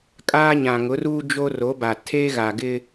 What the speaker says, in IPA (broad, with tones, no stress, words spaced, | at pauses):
kʼaː˦ɲã˨ŋʊ˨˦ruː˦ d͡ʒo˦ro˨˦ba˨ tʰe˦ɣa˨ɡɪ˦